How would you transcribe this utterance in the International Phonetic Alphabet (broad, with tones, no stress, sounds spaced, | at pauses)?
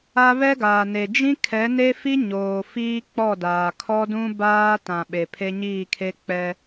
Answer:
a˦ β ɛ˦ ɡ aː˨ n e˨ d͡ʒ ĩ˦ kʰ ɛ˨˦ n e˦ f i˦ ɲ oː˨ f iː˦ k͡p ɔ˦˨ d aː˨ kʰ ɔ˦ d ũ˦ b aː˦ t ã˨ ɓ e˨ pʰ e˦ ɲ iː˦˨ kʰ e˦ k͡p ɛ˦